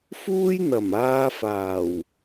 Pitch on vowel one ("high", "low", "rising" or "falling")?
high